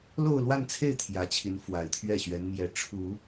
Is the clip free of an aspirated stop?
no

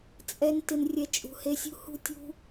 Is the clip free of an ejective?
no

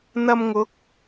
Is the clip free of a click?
yes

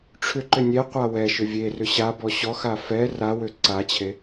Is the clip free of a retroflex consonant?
no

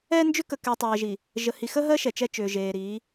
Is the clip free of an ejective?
yes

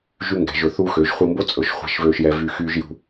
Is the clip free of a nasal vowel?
yes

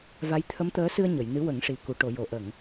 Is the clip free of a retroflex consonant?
no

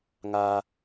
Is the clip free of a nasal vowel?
yes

